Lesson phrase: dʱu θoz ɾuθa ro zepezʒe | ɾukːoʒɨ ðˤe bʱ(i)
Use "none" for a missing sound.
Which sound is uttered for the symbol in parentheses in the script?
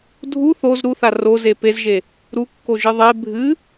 ɨ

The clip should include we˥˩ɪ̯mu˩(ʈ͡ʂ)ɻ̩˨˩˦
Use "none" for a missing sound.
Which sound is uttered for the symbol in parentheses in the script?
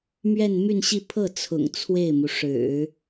ʂ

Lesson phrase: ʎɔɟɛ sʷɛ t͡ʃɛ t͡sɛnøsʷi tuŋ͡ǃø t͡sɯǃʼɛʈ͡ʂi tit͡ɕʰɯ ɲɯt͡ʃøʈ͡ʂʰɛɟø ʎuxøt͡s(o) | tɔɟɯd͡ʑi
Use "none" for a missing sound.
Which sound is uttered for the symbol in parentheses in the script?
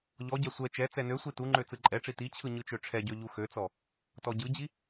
ɔ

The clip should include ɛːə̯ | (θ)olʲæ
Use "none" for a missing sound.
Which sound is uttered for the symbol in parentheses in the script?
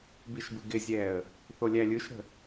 θ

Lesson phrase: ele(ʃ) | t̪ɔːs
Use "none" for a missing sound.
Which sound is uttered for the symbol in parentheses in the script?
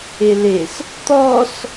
s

